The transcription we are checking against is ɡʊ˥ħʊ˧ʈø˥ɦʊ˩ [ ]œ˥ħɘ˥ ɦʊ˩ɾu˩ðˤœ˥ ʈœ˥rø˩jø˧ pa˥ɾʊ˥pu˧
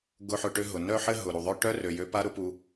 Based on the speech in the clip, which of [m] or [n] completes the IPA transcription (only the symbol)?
n